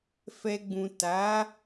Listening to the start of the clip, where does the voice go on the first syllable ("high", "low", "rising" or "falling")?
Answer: low